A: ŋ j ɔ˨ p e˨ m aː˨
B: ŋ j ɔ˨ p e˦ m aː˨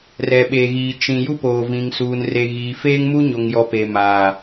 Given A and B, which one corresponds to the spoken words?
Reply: A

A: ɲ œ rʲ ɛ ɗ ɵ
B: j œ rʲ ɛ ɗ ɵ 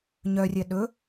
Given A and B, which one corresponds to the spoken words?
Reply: A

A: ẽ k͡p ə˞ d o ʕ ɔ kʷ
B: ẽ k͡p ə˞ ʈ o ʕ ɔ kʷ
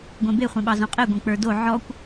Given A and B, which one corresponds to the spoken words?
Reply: A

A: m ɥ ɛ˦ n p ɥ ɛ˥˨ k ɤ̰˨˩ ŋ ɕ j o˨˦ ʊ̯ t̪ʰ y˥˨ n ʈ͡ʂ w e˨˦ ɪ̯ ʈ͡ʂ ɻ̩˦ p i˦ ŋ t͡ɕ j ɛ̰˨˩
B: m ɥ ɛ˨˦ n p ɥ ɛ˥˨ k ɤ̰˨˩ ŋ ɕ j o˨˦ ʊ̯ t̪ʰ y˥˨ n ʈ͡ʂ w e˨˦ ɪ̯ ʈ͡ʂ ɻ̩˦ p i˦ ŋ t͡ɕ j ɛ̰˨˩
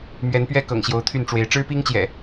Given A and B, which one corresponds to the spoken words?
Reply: B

